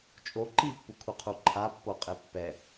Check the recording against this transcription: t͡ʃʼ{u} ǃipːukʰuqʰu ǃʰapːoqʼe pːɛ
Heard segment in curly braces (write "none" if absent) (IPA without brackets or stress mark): o